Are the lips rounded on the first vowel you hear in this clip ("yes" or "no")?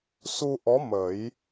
yes